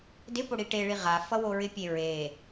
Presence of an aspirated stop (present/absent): absent